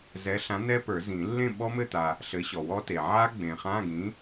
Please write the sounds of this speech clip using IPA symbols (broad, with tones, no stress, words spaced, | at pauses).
zɛ˨˥ɬã˨˥nɛ˦˥pə˞˨˩˦ zĩ˨˩˦ lːẽ˥˨ ɓɔ˦˥mɘ˥˨t̪a˨ | ɬɘ˨˥ɕɔ˨wɔ˦˥te˨ ʕa˦˥ɡ͡bẽ˨χã˧˥˧ɡĩ˨˥